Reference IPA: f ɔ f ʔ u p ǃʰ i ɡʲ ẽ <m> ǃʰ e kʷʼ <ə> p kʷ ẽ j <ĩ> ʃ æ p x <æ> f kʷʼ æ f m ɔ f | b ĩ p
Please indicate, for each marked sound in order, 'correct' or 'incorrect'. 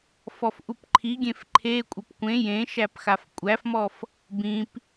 incorrect, incorrect, incorrect, incorrect

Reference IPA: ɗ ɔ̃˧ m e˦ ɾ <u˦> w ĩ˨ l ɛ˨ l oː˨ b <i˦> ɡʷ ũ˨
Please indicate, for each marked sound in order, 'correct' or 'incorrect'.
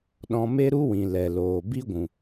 correct, correct

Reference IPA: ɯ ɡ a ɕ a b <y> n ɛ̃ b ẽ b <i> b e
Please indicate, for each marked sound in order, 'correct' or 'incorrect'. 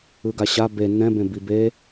incorrect, correct

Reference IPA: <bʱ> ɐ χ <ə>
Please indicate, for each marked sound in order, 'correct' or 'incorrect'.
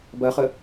incorrect, correct

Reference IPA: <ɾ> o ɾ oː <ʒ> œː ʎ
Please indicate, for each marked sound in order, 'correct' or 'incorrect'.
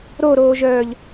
correct, correct

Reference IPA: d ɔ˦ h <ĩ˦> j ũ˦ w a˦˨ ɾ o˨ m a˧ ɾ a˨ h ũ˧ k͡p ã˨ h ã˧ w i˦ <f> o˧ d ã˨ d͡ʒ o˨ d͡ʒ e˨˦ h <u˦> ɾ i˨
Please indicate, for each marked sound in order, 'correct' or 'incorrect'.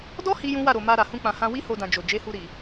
incorrect, incorrect, incorrect

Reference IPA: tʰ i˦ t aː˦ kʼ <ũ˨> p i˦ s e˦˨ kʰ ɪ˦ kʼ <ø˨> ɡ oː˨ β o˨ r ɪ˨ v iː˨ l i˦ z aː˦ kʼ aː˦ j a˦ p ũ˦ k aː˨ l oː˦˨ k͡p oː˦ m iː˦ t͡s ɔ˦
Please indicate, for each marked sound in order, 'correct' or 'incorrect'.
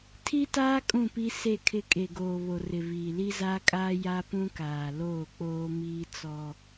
incorrect, incorrect

